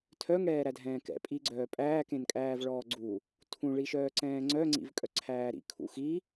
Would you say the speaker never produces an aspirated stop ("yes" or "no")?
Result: no